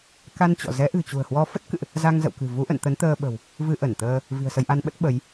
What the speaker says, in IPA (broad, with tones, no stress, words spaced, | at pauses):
ka˧n t͡ɕɔ̰˧˨ zɛ˨˦ʔɨ̤˨˩t͡ɕṳ˨˩ə̯hwɔ˧ fə˦˥t̚kɨ̰˧˨ʔ | za˧ŋzə̰˧˨wkɨ̤˨˩ vu˨˦ʔə̰˧˨n t̪ə˨˦nt̪əː˧ɓə̤˨˩w | vɨ˧ʔə˧˩nt̪əː˧ | vi̤˨˩ə̯sə˧jʔa˧nɓə˦˥t̚ ɓə˨˦j